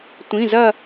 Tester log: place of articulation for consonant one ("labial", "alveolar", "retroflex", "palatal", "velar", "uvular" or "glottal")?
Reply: alveolar